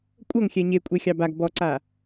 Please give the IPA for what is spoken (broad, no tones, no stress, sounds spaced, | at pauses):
kʷʼ ɤ ŋ xʲ ɛ ɲ e kʷʼ e xʲ ɑ b a ɡ b ɔ ǀ a